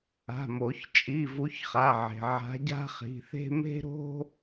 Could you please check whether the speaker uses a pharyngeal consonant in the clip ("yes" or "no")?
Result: yes